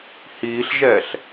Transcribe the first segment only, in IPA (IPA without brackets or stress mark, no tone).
h